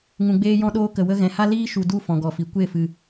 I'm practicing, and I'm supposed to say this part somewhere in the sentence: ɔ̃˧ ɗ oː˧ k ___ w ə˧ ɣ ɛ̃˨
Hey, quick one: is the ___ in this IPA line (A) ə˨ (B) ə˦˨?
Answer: A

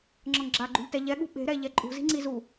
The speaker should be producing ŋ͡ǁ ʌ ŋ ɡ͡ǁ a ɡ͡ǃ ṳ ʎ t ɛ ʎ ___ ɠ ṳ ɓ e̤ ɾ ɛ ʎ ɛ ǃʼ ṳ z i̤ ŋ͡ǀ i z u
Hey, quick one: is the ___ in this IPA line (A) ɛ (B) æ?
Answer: A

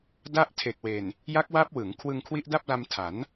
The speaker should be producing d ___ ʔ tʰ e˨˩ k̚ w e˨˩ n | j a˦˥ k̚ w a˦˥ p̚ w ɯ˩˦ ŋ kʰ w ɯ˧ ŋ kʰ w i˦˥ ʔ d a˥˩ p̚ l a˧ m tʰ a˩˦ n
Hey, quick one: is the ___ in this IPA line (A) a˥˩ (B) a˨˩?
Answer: A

